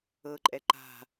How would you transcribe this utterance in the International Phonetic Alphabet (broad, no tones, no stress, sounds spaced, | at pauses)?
ɤ ǃʼ ɛ ǃ a̤